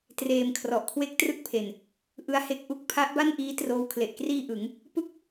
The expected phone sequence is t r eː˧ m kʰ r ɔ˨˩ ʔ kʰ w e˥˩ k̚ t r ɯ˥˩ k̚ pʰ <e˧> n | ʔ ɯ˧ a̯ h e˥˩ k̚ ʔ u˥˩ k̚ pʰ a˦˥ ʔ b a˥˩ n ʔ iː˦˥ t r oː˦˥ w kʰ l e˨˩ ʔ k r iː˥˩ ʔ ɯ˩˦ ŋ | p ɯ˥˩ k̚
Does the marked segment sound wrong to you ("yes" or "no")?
yes